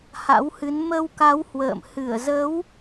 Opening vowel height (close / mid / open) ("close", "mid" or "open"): open